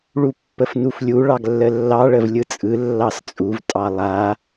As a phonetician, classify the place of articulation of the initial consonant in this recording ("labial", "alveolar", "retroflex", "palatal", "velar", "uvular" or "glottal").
retroflex